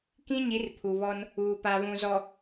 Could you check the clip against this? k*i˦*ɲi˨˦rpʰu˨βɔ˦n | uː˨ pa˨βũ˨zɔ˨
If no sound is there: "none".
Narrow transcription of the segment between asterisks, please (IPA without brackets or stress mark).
ĩ˦